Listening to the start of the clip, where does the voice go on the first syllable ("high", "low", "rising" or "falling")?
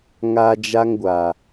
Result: high